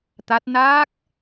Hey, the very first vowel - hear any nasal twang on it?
no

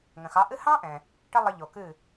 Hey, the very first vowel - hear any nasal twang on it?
yes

